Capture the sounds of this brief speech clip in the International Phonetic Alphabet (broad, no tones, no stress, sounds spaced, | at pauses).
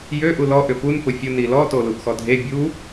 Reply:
j ø ʔ u l ɔ ʔ ʏ p u n p ʊ fʲ ʊ n i l ɔ t o l u ʔ x ɔ dʱ e bʲ u